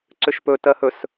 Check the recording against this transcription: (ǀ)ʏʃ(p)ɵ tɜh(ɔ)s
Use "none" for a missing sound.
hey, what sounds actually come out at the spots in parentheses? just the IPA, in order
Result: ǀ, p, ɵ

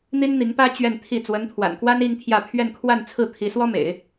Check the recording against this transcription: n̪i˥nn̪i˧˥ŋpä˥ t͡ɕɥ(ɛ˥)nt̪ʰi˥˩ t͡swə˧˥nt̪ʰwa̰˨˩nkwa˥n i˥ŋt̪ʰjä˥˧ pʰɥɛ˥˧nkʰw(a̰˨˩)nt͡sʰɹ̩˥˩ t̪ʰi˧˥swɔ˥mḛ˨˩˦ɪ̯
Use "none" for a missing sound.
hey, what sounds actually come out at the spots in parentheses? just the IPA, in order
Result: ɛ˥˧, a˥˧

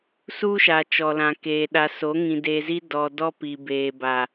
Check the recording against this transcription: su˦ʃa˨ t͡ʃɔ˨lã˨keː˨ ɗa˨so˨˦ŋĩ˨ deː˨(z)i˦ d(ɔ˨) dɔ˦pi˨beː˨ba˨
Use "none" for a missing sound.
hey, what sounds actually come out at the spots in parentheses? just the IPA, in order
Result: z, ɔ˨

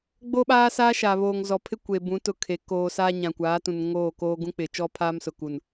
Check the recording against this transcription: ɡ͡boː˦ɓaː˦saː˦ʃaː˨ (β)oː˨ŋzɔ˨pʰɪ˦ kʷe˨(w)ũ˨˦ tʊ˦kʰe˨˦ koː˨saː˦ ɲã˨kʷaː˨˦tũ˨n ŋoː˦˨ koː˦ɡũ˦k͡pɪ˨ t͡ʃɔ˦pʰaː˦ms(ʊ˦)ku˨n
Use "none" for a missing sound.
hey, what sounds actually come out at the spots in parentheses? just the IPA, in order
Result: β, b, ʊ˨

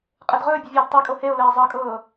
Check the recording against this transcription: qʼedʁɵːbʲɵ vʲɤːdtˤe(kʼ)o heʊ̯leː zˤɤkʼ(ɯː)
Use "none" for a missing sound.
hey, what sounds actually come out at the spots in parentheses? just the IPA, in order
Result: kʼ, ɤː

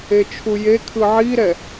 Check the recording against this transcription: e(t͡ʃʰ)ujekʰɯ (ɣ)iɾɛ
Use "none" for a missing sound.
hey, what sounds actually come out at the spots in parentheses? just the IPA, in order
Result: t͡ʃʰ, ʕ

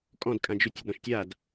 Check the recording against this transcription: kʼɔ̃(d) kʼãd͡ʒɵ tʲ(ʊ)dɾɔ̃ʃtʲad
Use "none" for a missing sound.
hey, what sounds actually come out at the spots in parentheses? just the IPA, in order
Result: d, ʊ

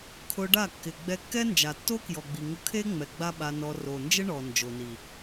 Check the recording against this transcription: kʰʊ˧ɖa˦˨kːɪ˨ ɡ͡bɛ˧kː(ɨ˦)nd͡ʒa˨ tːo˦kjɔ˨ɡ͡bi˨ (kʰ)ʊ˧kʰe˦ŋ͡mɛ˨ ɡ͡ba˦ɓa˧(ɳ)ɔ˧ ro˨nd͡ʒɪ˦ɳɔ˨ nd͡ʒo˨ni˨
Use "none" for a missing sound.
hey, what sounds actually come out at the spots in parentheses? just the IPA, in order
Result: ɛ˦, ŋ, n

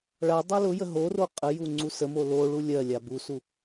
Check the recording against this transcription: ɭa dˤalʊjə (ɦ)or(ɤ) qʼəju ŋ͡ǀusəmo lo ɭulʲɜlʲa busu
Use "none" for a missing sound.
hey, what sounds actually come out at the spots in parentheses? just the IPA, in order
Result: ɦ, o

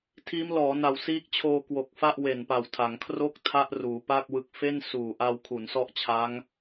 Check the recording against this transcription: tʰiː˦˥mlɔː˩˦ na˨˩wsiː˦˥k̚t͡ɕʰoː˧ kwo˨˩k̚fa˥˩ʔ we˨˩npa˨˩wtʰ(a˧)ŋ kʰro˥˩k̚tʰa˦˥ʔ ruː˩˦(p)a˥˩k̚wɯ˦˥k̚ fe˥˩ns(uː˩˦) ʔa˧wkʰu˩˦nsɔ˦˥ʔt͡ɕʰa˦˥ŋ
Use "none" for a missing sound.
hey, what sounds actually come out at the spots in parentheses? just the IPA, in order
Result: a˩˦, p, uː˨˩

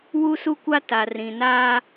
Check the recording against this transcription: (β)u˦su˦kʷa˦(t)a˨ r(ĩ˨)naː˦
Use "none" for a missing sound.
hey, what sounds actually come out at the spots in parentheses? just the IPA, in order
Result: w, t, ĩ˨

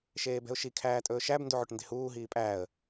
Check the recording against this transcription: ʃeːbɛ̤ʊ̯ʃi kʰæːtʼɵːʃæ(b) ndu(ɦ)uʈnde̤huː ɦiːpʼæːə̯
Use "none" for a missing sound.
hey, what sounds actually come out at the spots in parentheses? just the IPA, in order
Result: b, ʕ

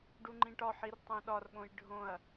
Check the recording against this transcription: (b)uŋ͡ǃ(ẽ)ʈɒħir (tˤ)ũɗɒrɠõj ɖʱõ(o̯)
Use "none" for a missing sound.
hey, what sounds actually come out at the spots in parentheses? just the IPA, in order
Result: ɖ, ĩ, tˤ, ɐ̯

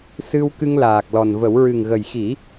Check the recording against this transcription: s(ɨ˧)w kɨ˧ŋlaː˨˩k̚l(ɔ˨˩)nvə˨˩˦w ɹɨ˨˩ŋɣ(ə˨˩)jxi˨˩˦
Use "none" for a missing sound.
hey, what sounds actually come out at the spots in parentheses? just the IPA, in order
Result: ɨ˧, ɔ˨˩, ə˨˩

